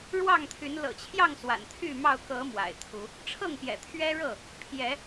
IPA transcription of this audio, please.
ɻ w ɑ˥˨ ŋ t̪ʰ y˨˦ n l ɤ̰˨˩ t͡ɕʰ j ɑ˥˨ ŋ s w a̰˨˩ n t̪ʰ y˥˨ m ɑ˥˨ ʊ̯ k ɤ˨˦ m w a̰˨˩ ɪ̯ t̪ʰ u˨˦ | ʈ͡ʂʰ ɤ˥˨ ŋ p j ɛ̰˨˩ t̪ʰ ɥ ɛ˦ ɻ ɤ˥˨ | pʰ j ɛ˨˦

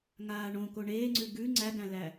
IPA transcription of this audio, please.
ŋ aː ɳ õ k o ɳ eː ŋ͡ǀ ʉ ɡ ʉ ŋ͡ǀ æ ɡ æ̃ l æ

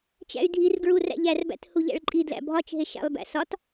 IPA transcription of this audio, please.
t͡ʃ æ̰ y̯ dʱ i r ɡ ɹ u r æ̰ ʎ æ r b æ̰ t h u ʎ æ̰ ɭ ǃʼ i d l æ̰ bʱ ɒ t͡ʃ ɦ e ʃ æ̰ lˠ b æ̰ s ɒ t

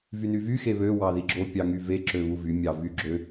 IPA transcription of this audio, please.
v y n y v y x e β ø w ɑ ð i ɡ͡ǁ o pʲ ɑ ŋ y v e ǁ ø β u v y mʲ ɑ v y ɡ͡ǁ ø

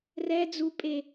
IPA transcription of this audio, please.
r ɛ d͡z u pʼ e

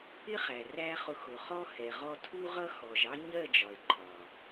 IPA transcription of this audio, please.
ɪ˦ χ æ˨ r æ˦ χ ʊ˧ x ʊ˨ χ ɔ˦ h ɛ˨ ʁ ɔ˧ tʰ u˦ ʁ ʌ˦ x ɔ˨ ʒ ɑ˦ ɲ ɜ˦˨ d͡ʒ ɒ˨ e̯ ǃʰ ɒ˨

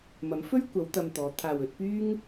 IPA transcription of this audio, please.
m ɐ˨˥ m f ɵ˥ ɥ kʷ ɐ˨˧ w t̪ ɐ˧ m t̪ ɔː˨˧ t̪ʰ aː˨ w ɵ˨˥ t̚ p yː˥ ŋ

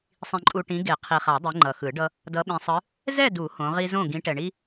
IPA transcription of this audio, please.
sˤ ĩ˨ ǃʼ u˨ ʈ ĩ˨˦ ɡ e˨˩˦ qʰ i˨ χ a˨˩˦ dˤ i˨˦ ŋ͡ǃ ʌ˨ x ɯ˨˩˦ ɖ ʌ˦ | d ʌ˨˦ ɓ ĩ˨ sˤ ɯ˨˦ | z ɛ˥˨ d u˨˩˦ h õ˨˦ ʁ i˦ z õ˥˨ ɡ ĩ˨˦ ʈ ɛ˨ ɳ i˦

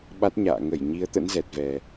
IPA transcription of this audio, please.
ɓ a˦˥ t̚ ɲ a̰ː˧˨ ŋ ə˧˩ j ɲ i˨˦ ə̯ t̪ ə̰˧˥ n z ɛ˨˩ t̚ v ɛ˨˩

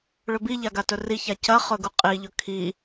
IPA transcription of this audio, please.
ɭ ɵ b i ʎ a ɡ a t ɵ r i ç a c ɐ χ ɵ ɡ u qʼ i ʎ ɵ kʰ i

